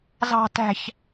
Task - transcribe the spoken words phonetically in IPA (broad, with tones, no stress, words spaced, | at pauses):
zɑ̤˦tæ̤˦ç